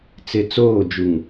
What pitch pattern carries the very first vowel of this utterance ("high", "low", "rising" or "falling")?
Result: low